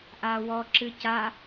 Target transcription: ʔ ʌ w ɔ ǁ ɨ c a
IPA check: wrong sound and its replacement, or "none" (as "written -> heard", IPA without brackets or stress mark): ʌ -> a